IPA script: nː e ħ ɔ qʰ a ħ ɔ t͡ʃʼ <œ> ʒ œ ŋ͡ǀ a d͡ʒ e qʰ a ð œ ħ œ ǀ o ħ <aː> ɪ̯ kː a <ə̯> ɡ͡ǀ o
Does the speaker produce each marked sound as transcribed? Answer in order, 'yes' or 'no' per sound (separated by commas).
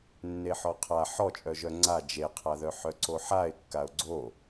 yes, no, no